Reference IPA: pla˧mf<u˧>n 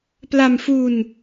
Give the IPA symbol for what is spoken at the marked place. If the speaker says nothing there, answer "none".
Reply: u˧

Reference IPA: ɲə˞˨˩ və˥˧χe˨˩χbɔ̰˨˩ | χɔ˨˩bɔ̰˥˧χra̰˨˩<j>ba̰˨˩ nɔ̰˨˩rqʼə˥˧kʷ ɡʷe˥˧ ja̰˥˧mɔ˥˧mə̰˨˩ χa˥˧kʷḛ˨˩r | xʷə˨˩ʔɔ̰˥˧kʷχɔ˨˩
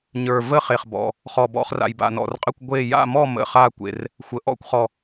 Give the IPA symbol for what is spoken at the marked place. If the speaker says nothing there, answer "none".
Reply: j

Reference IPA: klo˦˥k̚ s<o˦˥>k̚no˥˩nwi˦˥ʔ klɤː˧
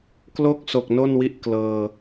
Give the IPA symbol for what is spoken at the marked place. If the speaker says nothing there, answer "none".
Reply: o˨˩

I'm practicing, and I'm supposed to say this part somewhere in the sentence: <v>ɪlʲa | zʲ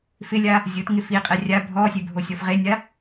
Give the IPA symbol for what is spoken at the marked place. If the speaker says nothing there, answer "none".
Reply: f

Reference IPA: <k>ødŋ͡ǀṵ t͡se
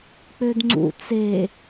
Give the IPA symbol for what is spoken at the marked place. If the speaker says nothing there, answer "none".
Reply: k͡p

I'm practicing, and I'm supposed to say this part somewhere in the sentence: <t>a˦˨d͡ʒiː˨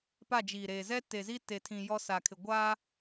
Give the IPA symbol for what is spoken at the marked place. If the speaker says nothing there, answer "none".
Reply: p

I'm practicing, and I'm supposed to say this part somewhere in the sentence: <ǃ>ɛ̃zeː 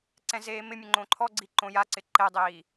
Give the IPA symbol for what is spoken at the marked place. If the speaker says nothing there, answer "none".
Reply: ǀ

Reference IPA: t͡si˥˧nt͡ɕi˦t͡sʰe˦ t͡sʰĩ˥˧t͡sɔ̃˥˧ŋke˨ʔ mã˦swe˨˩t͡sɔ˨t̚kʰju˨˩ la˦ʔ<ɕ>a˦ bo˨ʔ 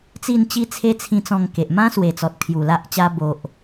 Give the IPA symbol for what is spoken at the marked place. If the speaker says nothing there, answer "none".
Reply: t͡ɕ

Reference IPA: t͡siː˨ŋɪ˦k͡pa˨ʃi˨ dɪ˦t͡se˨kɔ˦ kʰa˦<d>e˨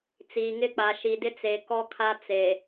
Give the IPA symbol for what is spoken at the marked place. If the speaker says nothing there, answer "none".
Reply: t͡s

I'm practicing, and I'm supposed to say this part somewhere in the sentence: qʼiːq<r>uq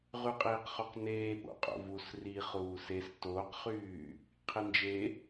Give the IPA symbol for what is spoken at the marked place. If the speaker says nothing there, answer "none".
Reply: χ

